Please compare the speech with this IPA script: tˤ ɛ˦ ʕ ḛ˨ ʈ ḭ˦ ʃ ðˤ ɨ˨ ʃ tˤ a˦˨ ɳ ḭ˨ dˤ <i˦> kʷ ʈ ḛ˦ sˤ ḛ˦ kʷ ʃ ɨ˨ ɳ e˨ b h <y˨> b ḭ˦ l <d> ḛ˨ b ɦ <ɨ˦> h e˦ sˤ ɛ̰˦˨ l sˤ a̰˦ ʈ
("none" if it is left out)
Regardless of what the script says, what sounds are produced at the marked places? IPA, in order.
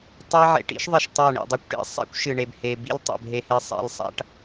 i˦, e˨, tˤ, e˦

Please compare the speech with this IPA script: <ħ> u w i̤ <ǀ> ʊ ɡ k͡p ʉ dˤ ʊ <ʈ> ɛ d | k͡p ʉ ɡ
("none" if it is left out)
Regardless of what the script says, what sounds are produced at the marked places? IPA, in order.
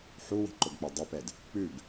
ħ, ǃ, p

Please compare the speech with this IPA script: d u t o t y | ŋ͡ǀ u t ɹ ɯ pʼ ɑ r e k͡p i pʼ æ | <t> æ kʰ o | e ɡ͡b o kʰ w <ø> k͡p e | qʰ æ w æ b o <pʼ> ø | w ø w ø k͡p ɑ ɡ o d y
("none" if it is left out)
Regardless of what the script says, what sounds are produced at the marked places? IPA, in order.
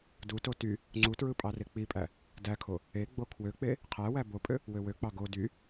d, ø, pʼ

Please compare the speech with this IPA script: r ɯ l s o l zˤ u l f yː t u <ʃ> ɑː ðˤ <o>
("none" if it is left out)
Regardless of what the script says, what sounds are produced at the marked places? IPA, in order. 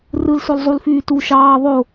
ʃ, o

